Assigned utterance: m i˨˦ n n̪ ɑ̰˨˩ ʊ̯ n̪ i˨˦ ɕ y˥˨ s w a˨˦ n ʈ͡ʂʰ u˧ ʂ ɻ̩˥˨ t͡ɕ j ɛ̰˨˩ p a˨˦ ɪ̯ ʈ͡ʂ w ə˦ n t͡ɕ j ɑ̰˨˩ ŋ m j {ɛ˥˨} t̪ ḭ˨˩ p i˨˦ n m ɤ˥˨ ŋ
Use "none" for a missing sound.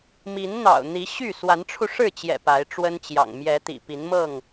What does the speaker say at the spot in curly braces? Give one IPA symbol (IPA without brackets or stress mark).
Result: ɛ˨˦